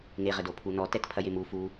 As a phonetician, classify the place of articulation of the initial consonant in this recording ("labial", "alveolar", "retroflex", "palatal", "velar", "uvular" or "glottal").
velar